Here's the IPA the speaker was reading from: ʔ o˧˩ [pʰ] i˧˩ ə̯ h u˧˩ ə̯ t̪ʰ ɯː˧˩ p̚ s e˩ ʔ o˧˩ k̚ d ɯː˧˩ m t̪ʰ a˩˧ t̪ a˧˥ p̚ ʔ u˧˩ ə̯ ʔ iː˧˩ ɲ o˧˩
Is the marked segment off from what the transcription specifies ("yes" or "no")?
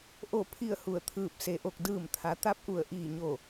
no